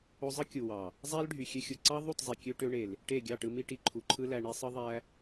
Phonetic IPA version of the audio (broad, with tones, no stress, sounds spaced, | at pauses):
o˧ zˤ ɯ˦ kʲ u˨ w ɑ˨ | zˤ æ˦ l ɖʱ y˨ xʲ ø˧ xʲ u˨ ǀ ɑ˦ ðˤ u˦˨ t zˤ i˨ kʲ ø˦ ʈ ø˧ ɳ e˨ l | ʈ e˦˨ ɡʲ ɑ˦˨ ʈ ɯ˧ m i˦ ʈ i˨ ǃʰ u˨ ǃʰ ɯ˦ l æ˧ ɳ i˧ sˤ ɯ˦ ðˤ æ˦